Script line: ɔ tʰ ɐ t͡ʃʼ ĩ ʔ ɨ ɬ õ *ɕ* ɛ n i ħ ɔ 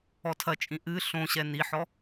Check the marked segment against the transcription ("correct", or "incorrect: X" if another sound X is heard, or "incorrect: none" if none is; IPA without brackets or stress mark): correct